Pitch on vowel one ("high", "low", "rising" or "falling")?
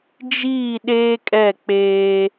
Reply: falling